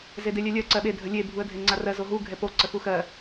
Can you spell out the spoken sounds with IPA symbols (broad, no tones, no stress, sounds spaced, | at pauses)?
z e d e lʲ ɛ lʲ ɜ ǀ ɜ ɓ e dʱ ə lʲ e bʱ u ə̯ dʱ e ŋ͡ǀ a r ɜ z o ɦ u ɡʱ ɛ p o ǀ ə x u x ɜ